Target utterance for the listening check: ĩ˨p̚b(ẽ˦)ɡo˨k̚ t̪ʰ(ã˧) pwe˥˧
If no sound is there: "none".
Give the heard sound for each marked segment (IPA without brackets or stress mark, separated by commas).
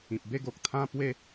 e˦, ã˥˧